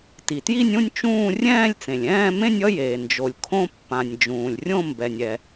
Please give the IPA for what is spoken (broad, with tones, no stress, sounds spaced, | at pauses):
t i˩ t j i˥˧ nʲ ũ˥˧ nʲ t͡ʃ ũː˥˧ rʲ ɛ̃ː˥˧ lʲ t͡s ẽ˩ lʲ ɛ̃ː˥˧ m ẽ˥˧ nʲ ʌ˥˧ j eː˩ n d͡ʒ o˩ lʲ kʰ õ˥˧ pː ã˩ nʲ d͡ʒ ũː˩ lʲ rʲ õ˥˧ m b ɛ˩ nʲ ɛ˩